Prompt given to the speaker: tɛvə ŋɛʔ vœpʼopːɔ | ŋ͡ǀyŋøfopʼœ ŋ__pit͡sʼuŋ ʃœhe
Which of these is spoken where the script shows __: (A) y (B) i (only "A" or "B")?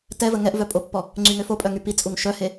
A